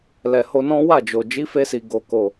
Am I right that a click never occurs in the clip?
yes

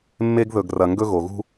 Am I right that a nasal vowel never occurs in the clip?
yes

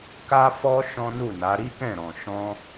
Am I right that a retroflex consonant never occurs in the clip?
yes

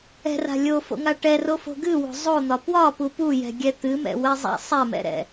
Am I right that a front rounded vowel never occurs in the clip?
yes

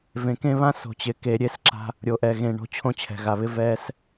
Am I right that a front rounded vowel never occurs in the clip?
yes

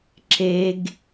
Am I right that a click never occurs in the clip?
no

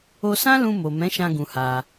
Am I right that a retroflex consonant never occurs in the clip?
yes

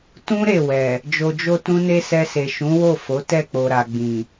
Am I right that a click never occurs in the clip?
yes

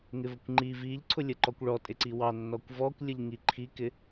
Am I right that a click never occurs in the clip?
no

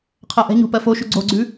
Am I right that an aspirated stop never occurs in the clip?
no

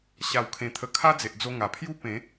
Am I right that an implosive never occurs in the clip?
yes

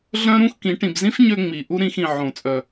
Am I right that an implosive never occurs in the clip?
yes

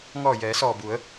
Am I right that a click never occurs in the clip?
yes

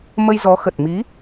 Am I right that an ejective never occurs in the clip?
yes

